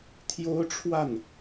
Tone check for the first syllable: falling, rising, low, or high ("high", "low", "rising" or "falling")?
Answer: high